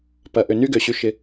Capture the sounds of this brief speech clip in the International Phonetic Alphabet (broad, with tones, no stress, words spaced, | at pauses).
pɐ˨ ʔø˨ny˦ɡø˨ ɕy˧ʃɪ˧